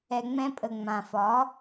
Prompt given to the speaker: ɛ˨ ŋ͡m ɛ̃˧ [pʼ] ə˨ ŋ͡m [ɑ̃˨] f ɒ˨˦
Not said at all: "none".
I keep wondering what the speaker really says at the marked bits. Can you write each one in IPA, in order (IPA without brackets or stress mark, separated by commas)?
pʼ, ã˨